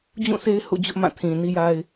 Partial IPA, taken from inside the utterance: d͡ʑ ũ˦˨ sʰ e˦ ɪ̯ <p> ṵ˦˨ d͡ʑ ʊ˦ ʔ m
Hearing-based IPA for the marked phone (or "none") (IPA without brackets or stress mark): h